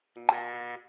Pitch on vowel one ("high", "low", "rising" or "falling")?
high